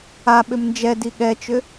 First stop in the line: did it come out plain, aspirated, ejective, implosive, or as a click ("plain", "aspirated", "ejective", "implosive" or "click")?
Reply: implosive